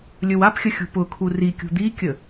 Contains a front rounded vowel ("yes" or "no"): no